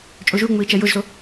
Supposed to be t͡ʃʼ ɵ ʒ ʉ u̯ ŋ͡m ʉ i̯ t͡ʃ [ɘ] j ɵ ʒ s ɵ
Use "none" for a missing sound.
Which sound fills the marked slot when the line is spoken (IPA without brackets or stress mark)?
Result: ɛ